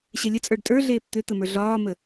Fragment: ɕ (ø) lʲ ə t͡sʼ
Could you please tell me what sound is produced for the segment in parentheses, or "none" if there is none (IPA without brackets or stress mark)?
ɛ